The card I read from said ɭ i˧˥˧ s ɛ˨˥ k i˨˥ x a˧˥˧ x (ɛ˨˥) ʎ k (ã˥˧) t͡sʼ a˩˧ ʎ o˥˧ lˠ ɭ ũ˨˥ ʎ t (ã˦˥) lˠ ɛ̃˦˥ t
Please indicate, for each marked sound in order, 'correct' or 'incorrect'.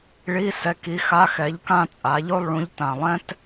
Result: correct, correct, incorrect: ã˨˩

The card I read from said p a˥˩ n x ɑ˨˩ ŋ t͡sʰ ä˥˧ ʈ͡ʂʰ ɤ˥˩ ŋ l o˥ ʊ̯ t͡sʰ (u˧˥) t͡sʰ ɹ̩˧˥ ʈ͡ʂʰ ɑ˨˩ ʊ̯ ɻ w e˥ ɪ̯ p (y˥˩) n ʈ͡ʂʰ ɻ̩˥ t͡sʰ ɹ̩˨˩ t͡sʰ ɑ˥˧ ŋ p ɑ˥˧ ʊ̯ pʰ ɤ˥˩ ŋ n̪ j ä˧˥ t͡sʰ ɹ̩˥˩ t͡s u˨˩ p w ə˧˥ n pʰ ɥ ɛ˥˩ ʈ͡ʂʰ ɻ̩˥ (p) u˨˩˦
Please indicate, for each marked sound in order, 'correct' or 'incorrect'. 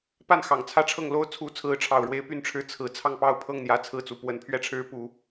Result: correct, correct, correct

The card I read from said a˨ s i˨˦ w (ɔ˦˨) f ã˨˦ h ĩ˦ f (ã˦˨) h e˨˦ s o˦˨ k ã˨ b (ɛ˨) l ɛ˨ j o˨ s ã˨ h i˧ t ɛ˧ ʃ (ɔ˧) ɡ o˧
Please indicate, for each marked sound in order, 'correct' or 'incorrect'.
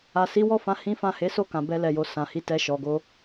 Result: correct, correct, incorrect: ɛ˧, incorrect: ɔ˨

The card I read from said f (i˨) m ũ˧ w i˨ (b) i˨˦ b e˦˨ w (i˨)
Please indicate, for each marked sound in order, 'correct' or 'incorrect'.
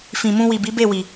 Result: incorrect: ĩ˨, correct, correct

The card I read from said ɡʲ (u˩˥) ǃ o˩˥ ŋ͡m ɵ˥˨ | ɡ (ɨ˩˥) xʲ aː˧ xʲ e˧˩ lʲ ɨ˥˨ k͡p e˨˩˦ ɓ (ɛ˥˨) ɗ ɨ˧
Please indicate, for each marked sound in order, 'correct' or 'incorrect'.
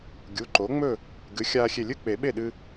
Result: incorrect: u˩˧˩, correct, incorrect: e˥˨

